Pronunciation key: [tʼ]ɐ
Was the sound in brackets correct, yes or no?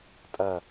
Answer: yes